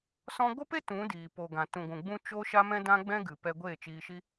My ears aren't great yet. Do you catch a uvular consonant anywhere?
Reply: no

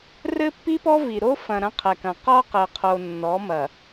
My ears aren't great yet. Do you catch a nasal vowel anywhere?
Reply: yes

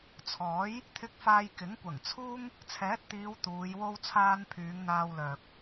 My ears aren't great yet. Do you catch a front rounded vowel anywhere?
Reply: yes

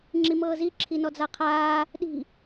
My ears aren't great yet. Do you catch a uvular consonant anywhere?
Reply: yes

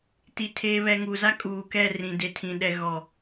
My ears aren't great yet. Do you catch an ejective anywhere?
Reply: yes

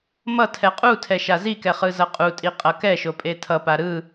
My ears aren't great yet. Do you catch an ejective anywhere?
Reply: yes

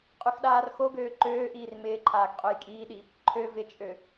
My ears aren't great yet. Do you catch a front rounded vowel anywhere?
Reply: yes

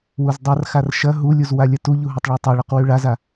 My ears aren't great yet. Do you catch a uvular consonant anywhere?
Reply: yes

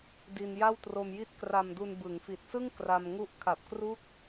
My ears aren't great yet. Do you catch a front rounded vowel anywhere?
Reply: no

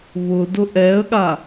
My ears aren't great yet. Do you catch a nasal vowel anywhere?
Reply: no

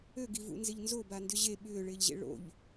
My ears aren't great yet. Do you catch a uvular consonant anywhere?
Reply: no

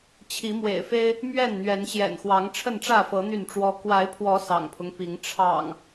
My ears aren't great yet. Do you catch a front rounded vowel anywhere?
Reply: yes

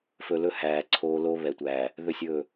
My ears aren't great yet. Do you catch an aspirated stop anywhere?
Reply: yes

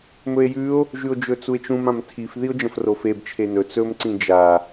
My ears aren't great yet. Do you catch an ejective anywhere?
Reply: no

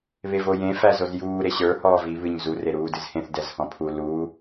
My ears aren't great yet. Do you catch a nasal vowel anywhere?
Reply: yes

